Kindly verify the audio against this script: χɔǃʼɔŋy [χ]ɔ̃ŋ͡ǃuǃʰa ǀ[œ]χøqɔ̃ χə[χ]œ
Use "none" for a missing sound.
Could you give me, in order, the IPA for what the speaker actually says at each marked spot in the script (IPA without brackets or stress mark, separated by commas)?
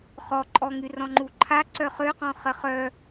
r, œ, χ